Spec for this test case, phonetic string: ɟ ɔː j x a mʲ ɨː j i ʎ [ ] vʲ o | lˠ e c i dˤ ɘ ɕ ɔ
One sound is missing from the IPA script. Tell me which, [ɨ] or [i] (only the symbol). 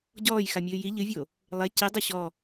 ɨ